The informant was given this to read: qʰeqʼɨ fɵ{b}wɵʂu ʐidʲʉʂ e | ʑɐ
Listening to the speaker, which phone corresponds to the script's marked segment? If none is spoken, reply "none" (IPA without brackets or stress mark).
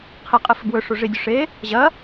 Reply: b